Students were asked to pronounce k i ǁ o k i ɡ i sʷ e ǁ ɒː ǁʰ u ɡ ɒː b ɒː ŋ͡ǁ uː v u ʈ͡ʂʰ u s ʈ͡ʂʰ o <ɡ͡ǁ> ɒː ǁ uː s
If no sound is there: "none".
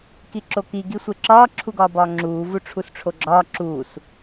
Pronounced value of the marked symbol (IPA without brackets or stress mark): ɡ͡ǁ